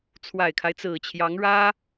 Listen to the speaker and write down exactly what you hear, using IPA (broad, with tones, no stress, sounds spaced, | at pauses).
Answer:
t͡sʰ w a˨˩ ɪ̯ kʰ a˦ ɪ̯ t͡s ɹ̩˨˩ t͡ɕʰ j ɑ˧˥ ŋ ɻ ä˥